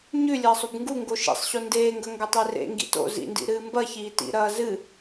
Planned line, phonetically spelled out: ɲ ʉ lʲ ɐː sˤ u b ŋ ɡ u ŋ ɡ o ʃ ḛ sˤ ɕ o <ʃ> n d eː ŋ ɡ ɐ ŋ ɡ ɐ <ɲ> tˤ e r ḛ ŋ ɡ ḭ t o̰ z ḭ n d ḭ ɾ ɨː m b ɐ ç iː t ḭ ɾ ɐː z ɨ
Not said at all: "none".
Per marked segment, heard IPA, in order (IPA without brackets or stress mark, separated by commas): none, none